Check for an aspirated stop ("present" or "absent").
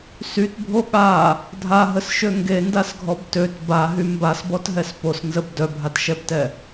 absent